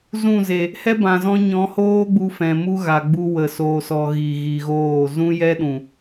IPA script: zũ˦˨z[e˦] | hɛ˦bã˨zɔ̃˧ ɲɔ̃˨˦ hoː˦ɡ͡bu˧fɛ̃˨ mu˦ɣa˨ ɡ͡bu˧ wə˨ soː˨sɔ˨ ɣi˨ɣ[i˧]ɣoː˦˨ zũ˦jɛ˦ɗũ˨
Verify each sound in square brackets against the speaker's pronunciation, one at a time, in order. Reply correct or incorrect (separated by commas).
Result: incorrect, incorrect